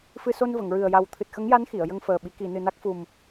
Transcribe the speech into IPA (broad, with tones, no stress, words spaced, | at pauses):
fɨ˧ so˧nvə˨˩˨ŋɹɨ˨˩ə̯ ja˨˩wt̪ʰɨ˨˩t̚xə˧˥ŋja˧˥n xi˨˩˨ə̯jə˧ŋfəː˨˩ɓi˨˩˦ ki˨˩˨nɨ˨˩ na˦˥k̚ fu˨˩m